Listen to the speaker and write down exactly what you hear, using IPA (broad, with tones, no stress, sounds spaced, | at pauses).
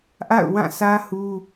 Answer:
ʔ a̰˦˨ ʊ̯ w ã˦˨ sʰ ä˦ h u˦